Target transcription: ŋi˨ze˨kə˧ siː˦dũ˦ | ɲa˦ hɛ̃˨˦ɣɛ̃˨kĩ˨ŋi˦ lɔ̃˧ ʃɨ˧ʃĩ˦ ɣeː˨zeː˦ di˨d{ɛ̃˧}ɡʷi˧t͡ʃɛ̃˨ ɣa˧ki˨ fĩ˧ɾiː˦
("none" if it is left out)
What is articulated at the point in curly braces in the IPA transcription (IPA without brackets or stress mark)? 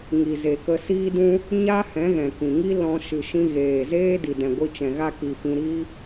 ɛ̃˨